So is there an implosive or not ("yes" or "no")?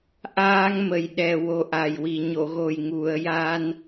yes